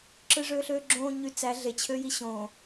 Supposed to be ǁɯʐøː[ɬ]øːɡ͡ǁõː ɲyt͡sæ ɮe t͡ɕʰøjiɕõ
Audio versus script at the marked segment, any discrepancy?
no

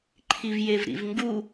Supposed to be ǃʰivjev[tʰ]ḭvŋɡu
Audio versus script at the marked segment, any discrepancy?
yes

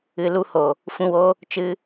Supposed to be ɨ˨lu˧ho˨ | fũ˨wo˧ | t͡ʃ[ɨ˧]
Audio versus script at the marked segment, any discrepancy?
no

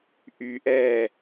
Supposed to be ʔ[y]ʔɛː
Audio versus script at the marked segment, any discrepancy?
no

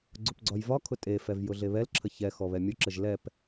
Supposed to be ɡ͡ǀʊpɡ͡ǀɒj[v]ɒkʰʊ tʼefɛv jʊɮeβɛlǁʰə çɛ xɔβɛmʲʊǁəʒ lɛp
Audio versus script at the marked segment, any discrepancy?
no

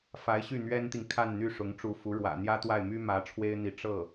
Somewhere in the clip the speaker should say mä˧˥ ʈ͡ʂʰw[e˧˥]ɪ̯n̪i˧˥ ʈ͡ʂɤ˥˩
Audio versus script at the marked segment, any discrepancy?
yes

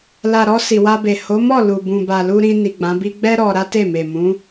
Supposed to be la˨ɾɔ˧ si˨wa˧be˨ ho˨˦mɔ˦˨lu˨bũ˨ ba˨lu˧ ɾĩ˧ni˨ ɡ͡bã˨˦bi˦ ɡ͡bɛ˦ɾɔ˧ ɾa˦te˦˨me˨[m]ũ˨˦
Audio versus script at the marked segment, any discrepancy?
no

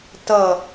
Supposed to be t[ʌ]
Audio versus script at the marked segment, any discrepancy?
no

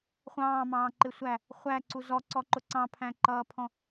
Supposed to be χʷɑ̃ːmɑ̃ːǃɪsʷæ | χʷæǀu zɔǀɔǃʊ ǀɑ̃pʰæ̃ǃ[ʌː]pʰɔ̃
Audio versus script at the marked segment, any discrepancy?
no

